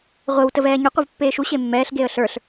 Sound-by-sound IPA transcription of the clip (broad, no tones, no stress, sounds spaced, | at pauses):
ʁʷ ɘ w t ə v ɛː ɲ ə qʷ ə v pː eː ʃ u ɕ e mː ɛː ɬ ɡ e ə̯ ɬ ə˞ ɬ